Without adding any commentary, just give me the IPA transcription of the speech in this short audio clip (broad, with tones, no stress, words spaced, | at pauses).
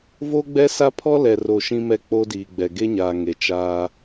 vo˦ɡ͡bɛ˦sa˦ pʰɔ˦lɛ˨ro˨ ʃĩ˦mɛ˦˨k͡po˦ diː˨ɡ͡bɛ˨ ɡe˦ɲaː˨ ŋe˨t͡ʃaː˦